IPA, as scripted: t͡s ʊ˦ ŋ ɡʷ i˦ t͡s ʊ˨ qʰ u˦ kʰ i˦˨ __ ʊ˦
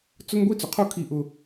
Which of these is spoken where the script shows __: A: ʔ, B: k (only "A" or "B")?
A